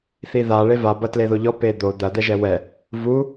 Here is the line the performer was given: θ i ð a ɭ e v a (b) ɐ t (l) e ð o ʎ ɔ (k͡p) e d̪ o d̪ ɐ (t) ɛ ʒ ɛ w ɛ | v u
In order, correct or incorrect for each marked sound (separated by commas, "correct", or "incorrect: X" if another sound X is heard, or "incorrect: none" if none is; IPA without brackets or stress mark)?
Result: correct, correct, incorrect: p, incorrect: d̪